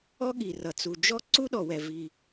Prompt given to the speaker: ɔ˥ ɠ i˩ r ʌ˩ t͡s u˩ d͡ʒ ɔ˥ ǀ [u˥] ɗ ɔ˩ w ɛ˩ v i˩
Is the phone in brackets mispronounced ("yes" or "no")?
no